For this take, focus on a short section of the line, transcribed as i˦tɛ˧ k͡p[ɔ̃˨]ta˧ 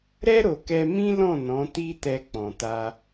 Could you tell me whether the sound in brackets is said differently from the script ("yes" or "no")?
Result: no